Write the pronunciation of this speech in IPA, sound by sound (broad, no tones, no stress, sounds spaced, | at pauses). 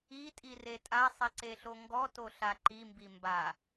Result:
i tʼ i r e tʼ a sˤ i ǀ e ɬ o ŋ ɡ ɔ t o ɬ a ǃ i m b i m b a